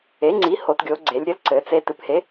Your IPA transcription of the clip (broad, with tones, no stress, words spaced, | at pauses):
e˩˥ ŋ͡ǀi˩˥ho˩˧tɡʲo˩˧ ɡ͡ǀe˩˧lʲɾʲɘ˩˥l ǀɘ˩˧t͡se˧ tɨ˩˧phe˩˥